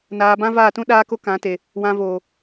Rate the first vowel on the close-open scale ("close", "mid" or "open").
open